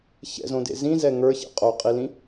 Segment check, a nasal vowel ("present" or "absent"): present